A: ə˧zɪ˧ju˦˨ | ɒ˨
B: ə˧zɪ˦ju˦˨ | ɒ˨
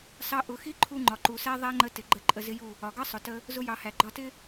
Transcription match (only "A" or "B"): B